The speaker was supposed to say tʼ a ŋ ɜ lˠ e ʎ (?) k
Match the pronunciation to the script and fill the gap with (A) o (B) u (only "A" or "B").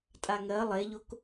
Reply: A